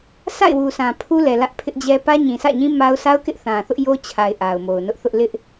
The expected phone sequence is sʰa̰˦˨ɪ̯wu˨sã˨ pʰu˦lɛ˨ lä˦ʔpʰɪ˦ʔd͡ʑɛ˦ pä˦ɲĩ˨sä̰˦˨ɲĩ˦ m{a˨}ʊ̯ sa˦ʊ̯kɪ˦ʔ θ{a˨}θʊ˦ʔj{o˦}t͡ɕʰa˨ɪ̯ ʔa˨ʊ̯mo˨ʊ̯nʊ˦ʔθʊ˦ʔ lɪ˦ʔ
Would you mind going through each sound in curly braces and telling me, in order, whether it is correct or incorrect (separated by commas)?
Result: incorrect, incorrect, correct